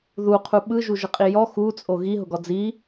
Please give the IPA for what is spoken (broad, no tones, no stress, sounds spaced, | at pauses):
ð u qʰ u ɓ ɯ ʒ u ʒ ə qʼ i j ɔ x u t͡sʼ o ɣ i ɦ ʊ ɡ ɔ d͡z i